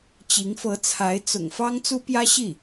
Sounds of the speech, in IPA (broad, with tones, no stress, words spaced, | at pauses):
t͡ɕi˧˥ŋfɤ˧˥t͡sʰa˧˥ɪ̯ t͡sʊ̰˨˩ŋ fɑ˥ŋt͡su˥pjä˥ ɕi˥˩